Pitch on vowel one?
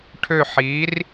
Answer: falling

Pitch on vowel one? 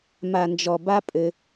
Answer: low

